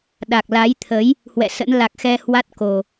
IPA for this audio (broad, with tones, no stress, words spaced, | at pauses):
ɗa˨˩k̚la˨˦jt̪ʰə˨˦j | hwɛ̰˧˨sə̰˧˥n la˨˩k̚xɛ˧ hwa˦˥t̚ko˨˩